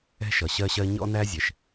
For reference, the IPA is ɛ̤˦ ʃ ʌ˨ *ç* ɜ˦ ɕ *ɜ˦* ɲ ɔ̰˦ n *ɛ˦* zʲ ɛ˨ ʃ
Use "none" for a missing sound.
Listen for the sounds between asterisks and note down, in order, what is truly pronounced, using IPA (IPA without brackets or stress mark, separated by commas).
ɕ, ɜ˦, æ˦